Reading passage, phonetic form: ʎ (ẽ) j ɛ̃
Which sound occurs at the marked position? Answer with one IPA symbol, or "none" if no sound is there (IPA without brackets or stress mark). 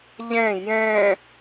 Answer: ɛ̃